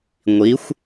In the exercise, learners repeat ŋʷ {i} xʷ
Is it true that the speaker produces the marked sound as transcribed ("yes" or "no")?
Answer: yes